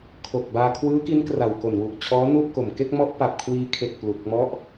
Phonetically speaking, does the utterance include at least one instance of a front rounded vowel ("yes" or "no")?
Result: no